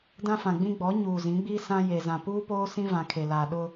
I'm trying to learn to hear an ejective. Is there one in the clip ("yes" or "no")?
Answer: no